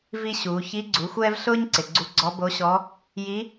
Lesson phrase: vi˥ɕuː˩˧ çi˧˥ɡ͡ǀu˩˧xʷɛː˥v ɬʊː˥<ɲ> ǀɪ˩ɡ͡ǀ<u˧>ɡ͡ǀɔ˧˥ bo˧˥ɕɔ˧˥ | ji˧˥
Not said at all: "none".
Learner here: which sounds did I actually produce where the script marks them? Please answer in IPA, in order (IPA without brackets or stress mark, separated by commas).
ɲ, u˧